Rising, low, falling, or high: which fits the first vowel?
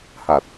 low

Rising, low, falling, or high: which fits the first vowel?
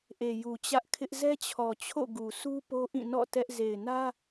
low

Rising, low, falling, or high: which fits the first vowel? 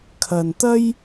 low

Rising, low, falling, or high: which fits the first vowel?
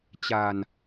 low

